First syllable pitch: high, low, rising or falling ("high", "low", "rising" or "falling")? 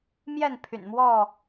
falling